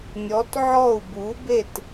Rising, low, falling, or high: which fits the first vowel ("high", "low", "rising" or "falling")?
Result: rising